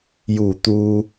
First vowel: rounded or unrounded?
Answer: rounded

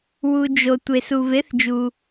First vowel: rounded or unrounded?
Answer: rounded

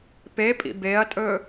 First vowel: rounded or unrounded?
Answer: unrounded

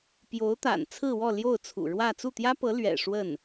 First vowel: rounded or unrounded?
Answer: rounded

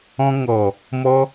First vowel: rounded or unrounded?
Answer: rounded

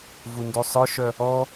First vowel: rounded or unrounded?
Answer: rounded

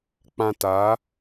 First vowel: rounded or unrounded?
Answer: unrounded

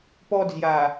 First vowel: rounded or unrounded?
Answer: rounded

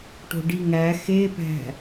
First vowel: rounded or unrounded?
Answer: rounded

